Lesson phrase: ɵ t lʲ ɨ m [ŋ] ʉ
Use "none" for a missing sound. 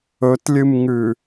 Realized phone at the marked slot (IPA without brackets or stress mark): ŋ